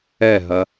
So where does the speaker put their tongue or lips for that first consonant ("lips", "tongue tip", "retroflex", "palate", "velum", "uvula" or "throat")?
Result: throat